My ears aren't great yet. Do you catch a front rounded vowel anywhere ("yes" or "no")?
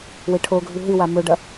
no